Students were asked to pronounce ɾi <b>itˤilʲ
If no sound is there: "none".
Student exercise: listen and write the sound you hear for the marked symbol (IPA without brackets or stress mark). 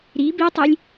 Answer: b